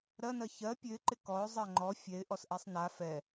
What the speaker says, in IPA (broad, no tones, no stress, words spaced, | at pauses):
ɾɜnɜ çɜ pʲøɪ̯ǃɪ kɔʊ̯zˤɜ ŋ͡ǃɔ fʲɛɪ̯ʔɔsʔɛsˤ na fɛ